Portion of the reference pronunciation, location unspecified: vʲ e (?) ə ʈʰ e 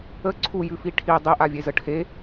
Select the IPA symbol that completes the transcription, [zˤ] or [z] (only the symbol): z